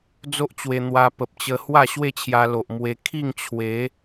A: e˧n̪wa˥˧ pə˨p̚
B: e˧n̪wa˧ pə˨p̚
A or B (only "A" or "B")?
B